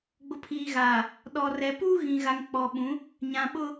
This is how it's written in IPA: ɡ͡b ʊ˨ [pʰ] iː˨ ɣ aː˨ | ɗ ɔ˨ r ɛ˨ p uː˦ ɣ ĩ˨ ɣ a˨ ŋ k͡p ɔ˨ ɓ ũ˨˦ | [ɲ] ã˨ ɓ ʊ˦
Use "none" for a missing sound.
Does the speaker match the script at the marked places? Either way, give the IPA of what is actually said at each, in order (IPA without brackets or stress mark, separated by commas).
pʰ, ɲ